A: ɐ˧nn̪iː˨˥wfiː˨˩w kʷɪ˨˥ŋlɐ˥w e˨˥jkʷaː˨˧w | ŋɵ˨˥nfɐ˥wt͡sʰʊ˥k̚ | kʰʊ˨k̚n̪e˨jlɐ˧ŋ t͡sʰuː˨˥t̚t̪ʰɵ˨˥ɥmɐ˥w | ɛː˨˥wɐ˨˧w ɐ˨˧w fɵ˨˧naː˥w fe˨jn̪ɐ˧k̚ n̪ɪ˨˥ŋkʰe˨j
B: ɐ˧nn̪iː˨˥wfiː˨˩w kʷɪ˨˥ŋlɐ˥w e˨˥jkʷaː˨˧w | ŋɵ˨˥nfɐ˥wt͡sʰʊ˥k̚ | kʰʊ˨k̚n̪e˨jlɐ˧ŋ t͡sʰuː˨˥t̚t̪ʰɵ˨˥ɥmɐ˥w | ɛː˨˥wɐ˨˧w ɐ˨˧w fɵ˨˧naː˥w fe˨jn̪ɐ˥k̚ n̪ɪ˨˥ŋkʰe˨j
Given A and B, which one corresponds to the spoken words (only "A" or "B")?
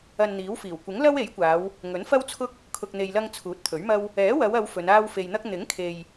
B